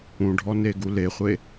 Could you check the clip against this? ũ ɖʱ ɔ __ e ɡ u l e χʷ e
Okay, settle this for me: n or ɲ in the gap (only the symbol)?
n